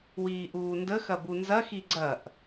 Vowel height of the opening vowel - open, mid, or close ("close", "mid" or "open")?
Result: close